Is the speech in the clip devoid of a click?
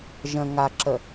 no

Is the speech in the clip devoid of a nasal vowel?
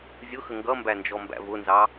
yes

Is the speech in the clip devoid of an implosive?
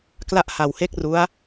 yes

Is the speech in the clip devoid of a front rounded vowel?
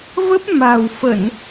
yes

